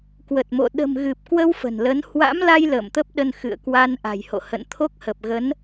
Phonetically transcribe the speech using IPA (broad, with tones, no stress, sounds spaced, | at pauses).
k w ə˨˩ t̚ m o̰˧˨ ɗ ə̤˨˩ m ɣ ɨ˨˩ p̚ k w ə˧ w f ə̤˨˩ n l ə˨˦ n h w a̰˧˥ m l a˧ j l ə̰ː˧˨ m t̪ ə˦˥ p̚ ɗ ə˧ n x ɨ̰˧˨ ə̯ k w a˧ n ʔ a̤˨˩ j h o̰˧˨ h ə̰˧˨ n t̪ʰ o˦˥ k̚ h ə˨˩ p̚ ɣ ə˨˦ n